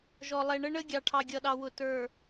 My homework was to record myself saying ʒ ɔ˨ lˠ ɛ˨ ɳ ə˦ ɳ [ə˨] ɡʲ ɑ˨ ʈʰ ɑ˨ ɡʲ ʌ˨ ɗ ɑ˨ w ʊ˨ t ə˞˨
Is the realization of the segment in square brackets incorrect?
yes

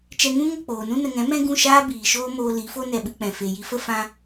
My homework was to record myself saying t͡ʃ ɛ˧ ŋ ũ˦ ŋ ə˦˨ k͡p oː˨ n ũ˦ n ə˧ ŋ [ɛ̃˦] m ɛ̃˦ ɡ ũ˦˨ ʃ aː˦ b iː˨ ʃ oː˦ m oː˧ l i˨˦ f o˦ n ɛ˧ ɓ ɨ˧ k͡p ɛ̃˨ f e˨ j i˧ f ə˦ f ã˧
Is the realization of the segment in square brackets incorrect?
yes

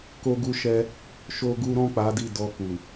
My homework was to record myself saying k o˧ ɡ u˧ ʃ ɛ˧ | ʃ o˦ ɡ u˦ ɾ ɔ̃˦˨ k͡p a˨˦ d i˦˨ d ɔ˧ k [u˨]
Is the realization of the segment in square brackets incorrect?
no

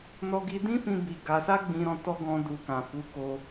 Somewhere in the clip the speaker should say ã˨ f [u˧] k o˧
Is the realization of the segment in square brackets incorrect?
yes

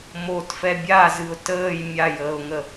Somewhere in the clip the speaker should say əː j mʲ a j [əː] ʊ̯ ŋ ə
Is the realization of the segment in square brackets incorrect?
no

